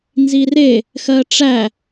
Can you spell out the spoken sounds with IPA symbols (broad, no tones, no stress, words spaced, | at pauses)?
nzire | xɜʈ͡ʂæ